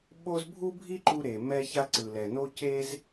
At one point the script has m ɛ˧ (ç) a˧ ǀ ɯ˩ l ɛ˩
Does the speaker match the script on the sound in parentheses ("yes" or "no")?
yes